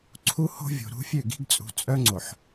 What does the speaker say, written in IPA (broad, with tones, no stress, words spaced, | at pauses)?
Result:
ǀʰu˦ho̤˦ vʲo̤˨ɾṳ˦fʲø˦˨ ɡi̤˦ɡt͡sʼṳ˨˦t͡sʼœ˦ ŋ͡ǀo˨ħ